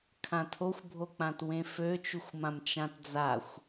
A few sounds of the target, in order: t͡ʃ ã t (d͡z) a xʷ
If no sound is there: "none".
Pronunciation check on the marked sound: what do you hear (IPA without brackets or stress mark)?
d͡z